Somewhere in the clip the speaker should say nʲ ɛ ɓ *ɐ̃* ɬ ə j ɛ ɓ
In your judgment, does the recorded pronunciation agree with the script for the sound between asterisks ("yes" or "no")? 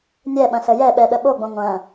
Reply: yes